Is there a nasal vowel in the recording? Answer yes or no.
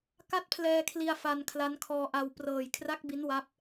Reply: no